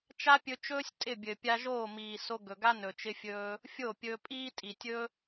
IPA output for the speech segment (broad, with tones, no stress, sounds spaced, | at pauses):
t͡ʃ a˦ pʲ ɵ˧ t͡ʃ ɵː˦ sʲ tʼ ɪ˦˨ bʲ ɘ˨ pʲ a˧ ʒ oː˦˨ m iː˨ s o˧ ɡ ɵ˨ ɡ a˦ n ɵ˨ t͡ʃ ɪ˦ fʲ ɵː˦ | fʲ o˦˨ pʲ ɵː˧ pʼ iː˦ tʼ i˨ tʲ ɵ˦